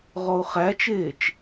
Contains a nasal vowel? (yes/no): no